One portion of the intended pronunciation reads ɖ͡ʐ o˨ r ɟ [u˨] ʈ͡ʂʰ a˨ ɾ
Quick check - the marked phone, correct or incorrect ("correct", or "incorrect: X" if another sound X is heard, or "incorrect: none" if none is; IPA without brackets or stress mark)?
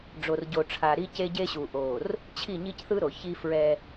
incorrect: o˨